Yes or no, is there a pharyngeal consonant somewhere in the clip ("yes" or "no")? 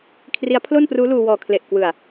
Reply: no